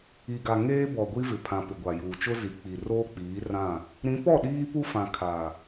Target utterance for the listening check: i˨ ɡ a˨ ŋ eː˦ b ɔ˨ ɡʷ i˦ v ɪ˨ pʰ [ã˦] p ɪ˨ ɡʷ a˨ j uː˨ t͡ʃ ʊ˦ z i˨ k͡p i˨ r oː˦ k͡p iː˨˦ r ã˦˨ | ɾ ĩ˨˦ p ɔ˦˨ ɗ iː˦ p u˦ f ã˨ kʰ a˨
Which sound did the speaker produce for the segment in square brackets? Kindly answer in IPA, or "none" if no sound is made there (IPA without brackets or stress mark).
ã˨